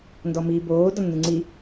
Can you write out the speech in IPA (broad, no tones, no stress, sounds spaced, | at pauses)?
n d ɔ m iː b oː d ɔ nː ɯ ŋ͡ǀ i